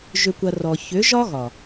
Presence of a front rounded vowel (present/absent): present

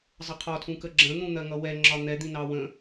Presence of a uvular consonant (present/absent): present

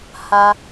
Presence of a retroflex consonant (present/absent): absent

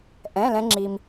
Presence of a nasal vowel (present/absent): present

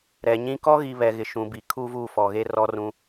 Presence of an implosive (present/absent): absent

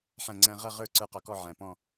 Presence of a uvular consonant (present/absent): present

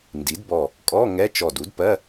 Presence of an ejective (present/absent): present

